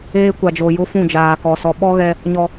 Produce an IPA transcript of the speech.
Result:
eː˦ kʷ a˨ d͡ʒ o˨ j ʊ˦ f ũ˦˨ d͡ʒ aː˨ k ɔ˨ s ɔ˨ ɓ ɔ˦ ɣ ɛ˦ | ɲ ɔ˨

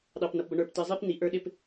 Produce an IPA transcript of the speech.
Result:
ɗ ɑ˨ p n ʌ˨ p b ʌ˨ ɳ ə˞˨ p t i˨ zˤ i˦ p n i˨ ʔ ə˞˦ ɗ ɪ˦ p

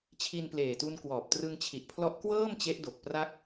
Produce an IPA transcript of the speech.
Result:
t͡ɕʰ i˧ n p l eː˨˩ t u˧ n k w ɔː˨˩ p̚ t r ɯ˧ ŋ t͡ɕʰ i˨˩ ʔ pʰ l ɔ˦˥ ʔ k w ɤː˥˩ m t͡ɕ e˦˥ ʔ d o˨˩ k̚ p r a˥˩ k̚

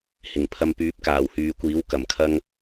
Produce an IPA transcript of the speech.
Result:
h ɪ˨˩ ŋ pʰ ɐ˧ m p yː˨˥ p̚ k aː˨˩ w h yː˨ kʷ iː˨˥ w k ɐ˨˩ m kʰ ɐ˧ ŋ

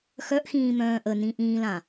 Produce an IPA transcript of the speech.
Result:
x œ ʔ x ĩː m œ̃ː ʔ ə n ĩ ʔ ĩː l ã

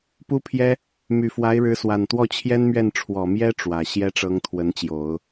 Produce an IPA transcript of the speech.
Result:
p u˥ pʰ j ɛ˥ | m y˨˩ f w a˧˥ ɪ̯ ɻ ɻ̩˧˥ s w a˨˩ n t̪ w ɔ˥˩ t͡ɕʰ j ɛ˥ n m ɥ ɛ˥˩ n ʈ͡ʂʰ w ɔ˨˩ m j ɛ˥ ʈ͡ʂ w ä˨˩ ɕ j ɛ˥ ʈ͡ʂ ɤ˧˥ ŋ t̪ʰ w ə˧˥ n t͡ɕ j o˨˩˦ ʊ̯

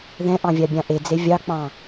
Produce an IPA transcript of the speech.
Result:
ð ɛ̃ ʔ ɑ̃ vʲ ɑ bʲ ɑ̃ ʔ e d͡z e vʲ ɑ k͡p ɑ̃

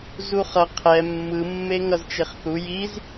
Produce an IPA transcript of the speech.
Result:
z u χ ʌ qʰ ɛ mː ɯ mː e ŋ ʌ z t͡ʃ e χ θ u j i z

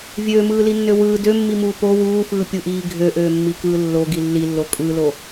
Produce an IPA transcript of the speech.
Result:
vʲ øː m ɯː l i nː ø w ɯː d ø mː i m uː p o w uː f ɯː pʲ u ʔ iː ɡʱ ø ʔ øː mː i k ɯː lː o ɡ i lː i lː o kʼ ɯ l o

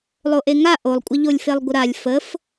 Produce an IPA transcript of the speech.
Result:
lˠ o ʔ e ŋ a ʔ o lˠ kʷʼ ə ʎ o lʲ f e lˠ ɡʷ ə ɾ a lʲ f ə f

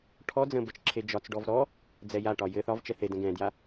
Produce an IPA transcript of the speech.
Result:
ʈʰ ɔ d͡z ə̃ b ə t͡ʃ ǁʰ e d͡ʒ ɒ t͡s ɖ ɔ v ɾ ɔ | d͡z ɛ j a ʈ ɒ j ɘ θ ɒ v t͡ʃ ɛ θ e d ə̃ ɡ ɛ̃ d j a

